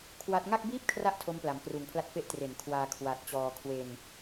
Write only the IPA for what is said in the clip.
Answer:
kʰwa˦˥t̚ ŋa˥˩k̚biː˥˩p̚kʰra˦˥ʔ tʰo˦˥mpla˩˦mkruː˨˩ŋpʰla˦˥t̚ fe˦˥ʔ tre˩˦n kʰwaː˧kʰwa˨˩t̚t͡ɕɔː˧ kʰwe˧n

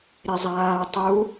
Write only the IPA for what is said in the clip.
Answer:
ɾezˤaː tˤu

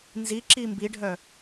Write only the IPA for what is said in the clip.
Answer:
nziǁi mbiɖʱœ

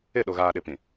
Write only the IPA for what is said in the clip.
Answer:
ɪ˦˨ ɗo˨ɣaː˨ɗɪ˨pĩ˨

